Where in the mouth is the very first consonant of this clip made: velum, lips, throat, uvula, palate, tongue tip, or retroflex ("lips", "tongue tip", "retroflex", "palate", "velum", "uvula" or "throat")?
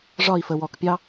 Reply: retroflex